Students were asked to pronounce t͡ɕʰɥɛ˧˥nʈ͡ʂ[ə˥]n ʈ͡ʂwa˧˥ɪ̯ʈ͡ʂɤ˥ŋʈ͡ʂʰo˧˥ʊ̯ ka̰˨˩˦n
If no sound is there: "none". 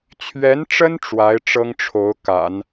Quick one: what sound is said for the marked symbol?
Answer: ə˥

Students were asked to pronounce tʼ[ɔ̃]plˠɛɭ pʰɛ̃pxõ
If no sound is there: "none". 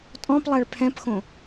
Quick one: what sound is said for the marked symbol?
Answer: ɔ̃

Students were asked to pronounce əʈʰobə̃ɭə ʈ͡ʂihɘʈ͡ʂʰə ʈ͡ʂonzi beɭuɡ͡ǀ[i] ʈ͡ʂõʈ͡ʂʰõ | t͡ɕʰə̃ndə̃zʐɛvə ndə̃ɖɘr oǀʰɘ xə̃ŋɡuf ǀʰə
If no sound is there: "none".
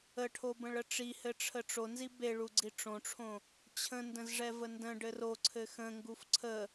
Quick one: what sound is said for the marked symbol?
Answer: i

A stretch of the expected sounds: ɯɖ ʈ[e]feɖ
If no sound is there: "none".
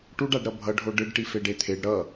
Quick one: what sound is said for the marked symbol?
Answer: i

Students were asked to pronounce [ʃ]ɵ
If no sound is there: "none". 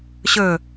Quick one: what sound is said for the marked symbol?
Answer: ɕ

